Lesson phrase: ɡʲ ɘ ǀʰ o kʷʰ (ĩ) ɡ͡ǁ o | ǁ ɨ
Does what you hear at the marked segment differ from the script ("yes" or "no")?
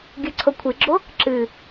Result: yes